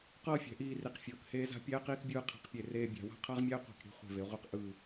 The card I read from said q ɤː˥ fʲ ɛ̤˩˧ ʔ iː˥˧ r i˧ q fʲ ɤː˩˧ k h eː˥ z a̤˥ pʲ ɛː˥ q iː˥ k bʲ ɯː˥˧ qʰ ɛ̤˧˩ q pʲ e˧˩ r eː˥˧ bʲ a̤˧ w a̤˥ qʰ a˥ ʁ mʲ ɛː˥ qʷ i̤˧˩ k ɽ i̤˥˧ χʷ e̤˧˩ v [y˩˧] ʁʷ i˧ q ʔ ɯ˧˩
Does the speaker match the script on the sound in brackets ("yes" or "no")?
no